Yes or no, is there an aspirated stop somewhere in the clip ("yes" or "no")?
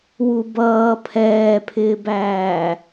yes